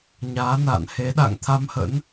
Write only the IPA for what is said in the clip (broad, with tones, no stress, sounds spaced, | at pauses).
ɲ aː˨˦ n a̰ː˧˨ n h e˨˦ ɗ a̰ː˧˨ ŋ t̪ʰ a˧ m h ə̰˧˥ n